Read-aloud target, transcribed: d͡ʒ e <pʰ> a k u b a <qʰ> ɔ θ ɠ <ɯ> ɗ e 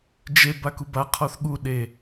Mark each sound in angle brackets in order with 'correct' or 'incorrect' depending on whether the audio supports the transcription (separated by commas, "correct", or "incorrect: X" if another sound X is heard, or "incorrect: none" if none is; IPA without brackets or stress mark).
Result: incorrect: b, correct, incorrect: u